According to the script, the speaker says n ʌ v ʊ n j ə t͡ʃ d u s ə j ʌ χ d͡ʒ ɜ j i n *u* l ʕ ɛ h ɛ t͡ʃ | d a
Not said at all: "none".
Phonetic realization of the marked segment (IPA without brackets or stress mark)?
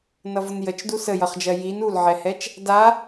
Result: u